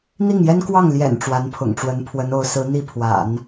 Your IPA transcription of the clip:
n̪i˥˩ŋjɛ˥nkwɑ˥˩ŋ ljɛ̰˨˩n ʈ͡ʂwa˧˥npʰʊ̰˨˩ŋʈ͡ʂwə˧˥n pʰwə˧˥no˧˥ʊ̯ sɹ̩˧˥ n̪i˥˩pʰwa̰˨˩˦n

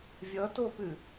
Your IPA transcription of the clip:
vʲʌtopʉ

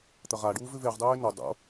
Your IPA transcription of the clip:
t̪ɐʁaɖuːv ʉveʁdˤɵːe̯ no dˤo̰

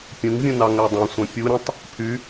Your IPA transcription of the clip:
pʲũŋvʲũ nɑŋædˤœ̃sʷœ̃ pʲuɾʲɔ̃tˤ | pʰy

